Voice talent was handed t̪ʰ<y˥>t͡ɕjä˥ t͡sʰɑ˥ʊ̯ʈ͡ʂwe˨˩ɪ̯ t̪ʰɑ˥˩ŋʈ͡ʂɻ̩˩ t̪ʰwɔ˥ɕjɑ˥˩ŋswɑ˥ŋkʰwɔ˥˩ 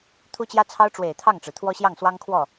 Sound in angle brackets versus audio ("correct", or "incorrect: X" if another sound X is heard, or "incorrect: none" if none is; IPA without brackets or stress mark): incorrect: u˥